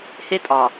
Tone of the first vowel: high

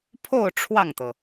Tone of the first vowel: falling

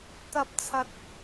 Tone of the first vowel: rising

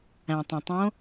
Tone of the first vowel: low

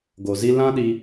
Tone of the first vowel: low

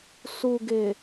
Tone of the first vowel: low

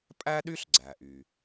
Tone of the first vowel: high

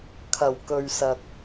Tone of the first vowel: low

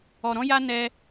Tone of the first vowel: low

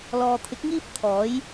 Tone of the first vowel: low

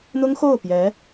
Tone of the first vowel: high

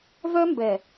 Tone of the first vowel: high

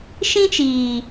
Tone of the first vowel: high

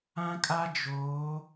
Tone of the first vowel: high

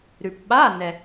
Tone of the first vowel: low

